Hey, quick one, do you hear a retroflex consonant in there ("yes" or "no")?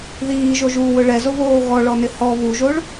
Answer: yes